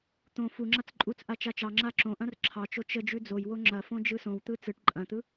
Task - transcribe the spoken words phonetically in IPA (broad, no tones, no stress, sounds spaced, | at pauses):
t̪ õ f u ŋ͡ǁ a t͡s ǃʼ u t͡s ʔ a t͡ʃ a t͡ʃ ɑ ŋ͡ǁ a ǁ õ ʔ ɐ̃ r ǁʰ ɑ t͡ʃ o t͡ʃ ə d͡ʒ ʉ d͡z o j w o ŋ͡ǁ ɐ f õ d͡ʒ ɯ s õ w t̪ ɯ t͡s ɯ ʈ ǃʼ ɐ̃ t̪ ɯ